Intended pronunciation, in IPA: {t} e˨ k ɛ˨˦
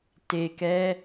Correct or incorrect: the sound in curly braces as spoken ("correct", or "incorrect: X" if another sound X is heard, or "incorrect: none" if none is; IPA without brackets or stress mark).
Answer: correct